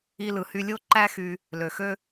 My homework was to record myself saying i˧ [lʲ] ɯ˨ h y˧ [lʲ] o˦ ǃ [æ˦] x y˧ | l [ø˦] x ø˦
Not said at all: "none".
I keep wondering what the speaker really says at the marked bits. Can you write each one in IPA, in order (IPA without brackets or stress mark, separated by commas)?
l, lʲ, æ˦, ø˨